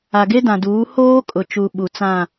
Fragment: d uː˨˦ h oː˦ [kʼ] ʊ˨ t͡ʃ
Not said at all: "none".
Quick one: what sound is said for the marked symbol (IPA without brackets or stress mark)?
kʼ